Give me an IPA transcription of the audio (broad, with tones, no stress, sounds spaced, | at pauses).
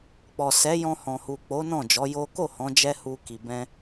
k͡p ɔ˨ s ɛ˨˦ j ɔ̃˧ h ɔ̃˨ h u˨ k͡p o˨˦ n ɔ̃˦˨ d͡ʒ ɔ˨˦ j o˦ k o˦˨ h ɔ̃˨˦ d͡ʒ ɛ˦ h u˦ k i˧ b ɛ̃˦